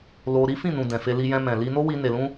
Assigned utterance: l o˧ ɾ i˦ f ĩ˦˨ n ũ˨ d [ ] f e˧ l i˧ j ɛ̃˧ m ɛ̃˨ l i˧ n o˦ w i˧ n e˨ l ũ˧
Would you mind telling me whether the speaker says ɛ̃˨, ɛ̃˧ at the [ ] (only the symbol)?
ɛ̃˨